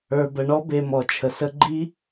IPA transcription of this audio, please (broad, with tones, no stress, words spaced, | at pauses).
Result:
ə˞˨bə˨ɳɔ˦ be˧mɔ˨t͡ʃʰə˨ sə˧ɡ͡ǃi˦